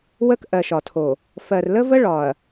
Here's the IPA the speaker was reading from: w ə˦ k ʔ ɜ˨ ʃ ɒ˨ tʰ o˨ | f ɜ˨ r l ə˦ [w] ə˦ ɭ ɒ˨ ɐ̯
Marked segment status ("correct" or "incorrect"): incorrect